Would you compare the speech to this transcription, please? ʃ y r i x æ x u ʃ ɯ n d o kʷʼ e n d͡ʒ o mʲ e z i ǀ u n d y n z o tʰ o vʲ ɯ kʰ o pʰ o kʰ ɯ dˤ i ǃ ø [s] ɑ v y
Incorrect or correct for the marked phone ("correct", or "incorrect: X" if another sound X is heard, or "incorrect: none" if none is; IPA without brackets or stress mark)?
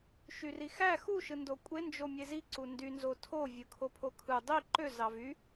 incorrect: z